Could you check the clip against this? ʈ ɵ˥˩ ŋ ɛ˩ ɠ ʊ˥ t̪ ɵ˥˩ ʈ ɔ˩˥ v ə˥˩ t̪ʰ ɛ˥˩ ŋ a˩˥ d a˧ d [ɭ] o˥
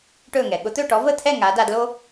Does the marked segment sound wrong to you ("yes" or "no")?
yes